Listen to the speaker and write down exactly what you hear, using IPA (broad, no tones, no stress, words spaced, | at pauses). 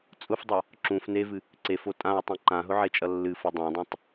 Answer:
t͡sʼʊfdˤʌ | ǁũf nevɨ | ǀefo tʼãwtˤẽ ǃãɦʊʕet͡ʃʼʌ lːɨfʊ dˤãdˤõtˤ